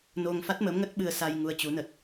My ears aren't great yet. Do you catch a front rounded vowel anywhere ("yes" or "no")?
no